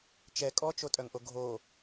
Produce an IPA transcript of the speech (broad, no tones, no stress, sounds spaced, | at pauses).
t͡ʃ ɛ kʼ ɔ t͡ʃ o tʼ œ ŋ ʔ o ɡʱ o